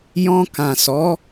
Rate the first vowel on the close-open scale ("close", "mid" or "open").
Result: mid